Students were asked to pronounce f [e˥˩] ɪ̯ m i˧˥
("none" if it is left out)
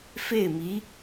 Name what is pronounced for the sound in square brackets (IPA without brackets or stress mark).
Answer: e˥˩